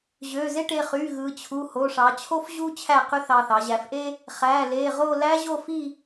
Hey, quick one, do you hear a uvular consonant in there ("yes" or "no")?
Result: yes